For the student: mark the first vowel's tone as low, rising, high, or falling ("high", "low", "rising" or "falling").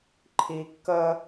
high